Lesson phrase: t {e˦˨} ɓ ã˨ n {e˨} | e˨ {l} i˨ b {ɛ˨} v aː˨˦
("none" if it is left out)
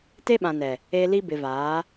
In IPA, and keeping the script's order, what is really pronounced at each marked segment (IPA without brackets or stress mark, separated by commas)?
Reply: e˦, ɛ˨, l, ɪ˨